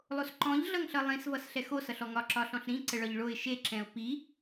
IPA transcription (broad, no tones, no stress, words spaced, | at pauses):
lˠosǃɔ̃ʎ ɮʌŋɬʌlˠĩs vʌsɬɛxo sʌɬɔŋɒ ǁɒɬɔ̃ɬɾĩ ǀəɭɒʎɭoɪ̯ ʃe ǁɛ̃ʊ̯pi